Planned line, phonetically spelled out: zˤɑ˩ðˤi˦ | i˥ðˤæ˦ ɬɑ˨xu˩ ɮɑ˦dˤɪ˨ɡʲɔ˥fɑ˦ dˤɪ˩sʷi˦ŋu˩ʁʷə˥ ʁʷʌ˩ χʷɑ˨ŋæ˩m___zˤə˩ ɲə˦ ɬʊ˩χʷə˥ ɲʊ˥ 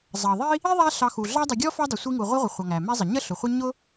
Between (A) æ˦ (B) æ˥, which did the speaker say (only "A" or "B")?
B